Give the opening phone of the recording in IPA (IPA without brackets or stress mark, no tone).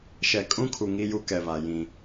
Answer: ʃ